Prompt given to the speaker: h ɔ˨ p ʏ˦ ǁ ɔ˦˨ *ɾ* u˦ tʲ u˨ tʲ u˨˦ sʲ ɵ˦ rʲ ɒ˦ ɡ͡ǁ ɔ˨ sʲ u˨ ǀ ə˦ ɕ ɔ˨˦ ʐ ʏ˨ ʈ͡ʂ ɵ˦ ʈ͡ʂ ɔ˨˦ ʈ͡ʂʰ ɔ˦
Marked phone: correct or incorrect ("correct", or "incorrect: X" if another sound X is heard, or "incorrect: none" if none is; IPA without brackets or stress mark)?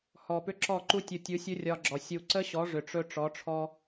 incorrect: ǃ